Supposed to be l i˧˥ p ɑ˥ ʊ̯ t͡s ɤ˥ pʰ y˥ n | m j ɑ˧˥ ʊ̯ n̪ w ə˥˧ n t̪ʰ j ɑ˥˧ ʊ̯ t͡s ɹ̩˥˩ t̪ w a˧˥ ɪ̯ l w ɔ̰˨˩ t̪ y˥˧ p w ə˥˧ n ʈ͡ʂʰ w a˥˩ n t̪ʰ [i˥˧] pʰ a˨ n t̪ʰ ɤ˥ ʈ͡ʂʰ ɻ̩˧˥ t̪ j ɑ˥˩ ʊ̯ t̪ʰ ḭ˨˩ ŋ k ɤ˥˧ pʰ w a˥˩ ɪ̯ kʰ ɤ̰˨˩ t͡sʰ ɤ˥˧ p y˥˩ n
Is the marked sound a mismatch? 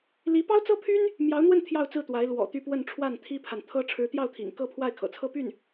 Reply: yes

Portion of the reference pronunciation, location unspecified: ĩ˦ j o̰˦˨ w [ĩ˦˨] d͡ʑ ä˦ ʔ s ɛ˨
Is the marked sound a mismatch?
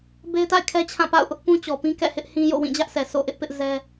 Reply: no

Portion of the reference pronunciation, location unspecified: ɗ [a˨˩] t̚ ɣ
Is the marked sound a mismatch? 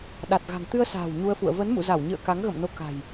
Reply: no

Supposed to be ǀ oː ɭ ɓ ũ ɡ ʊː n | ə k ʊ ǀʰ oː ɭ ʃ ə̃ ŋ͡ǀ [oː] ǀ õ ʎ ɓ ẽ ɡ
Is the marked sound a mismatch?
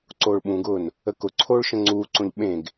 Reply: yes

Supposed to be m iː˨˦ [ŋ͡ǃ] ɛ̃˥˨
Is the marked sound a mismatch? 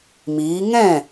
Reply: yes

